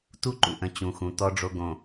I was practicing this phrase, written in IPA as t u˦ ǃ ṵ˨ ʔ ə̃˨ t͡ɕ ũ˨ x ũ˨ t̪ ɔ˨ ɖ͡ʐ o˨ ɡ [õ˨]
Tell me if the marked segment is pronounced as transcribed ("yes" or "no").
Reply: yes